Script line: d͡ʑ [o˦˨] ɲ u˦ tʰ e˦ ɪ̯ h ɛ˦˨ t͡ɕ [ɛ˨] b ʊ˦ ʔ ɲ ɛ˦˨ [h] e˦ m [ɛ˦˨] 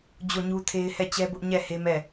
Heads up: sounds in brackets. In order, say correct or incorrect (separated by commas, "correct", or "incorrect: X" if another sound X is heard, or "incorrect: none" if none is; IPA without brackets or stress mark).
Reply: correct, incorrect: ɛ˦, correct, correct